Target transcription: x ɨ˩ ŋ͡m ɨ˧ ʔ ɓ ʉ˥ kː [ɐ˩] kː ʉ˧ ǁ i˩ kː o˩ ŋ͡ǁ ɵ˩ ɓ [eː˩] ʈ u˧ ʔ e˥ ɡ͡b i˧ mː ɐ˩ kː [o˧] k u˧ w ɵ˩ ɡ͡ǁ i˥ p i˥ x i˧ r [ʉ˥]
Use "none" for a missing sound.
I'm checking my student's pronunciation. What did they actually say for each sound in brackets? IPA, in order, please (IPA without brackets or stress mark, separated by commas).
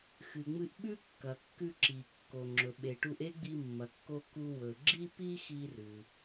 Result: ɐ˩, e˩, o˧, ʉ˩